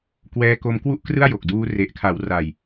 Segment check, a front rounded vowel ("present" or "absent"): absent